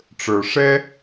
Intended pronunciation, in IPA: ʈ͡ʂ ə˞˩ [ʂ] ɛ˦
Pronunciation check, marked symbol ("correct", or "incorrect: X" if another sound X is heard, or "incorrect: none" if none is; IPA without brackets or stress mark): correct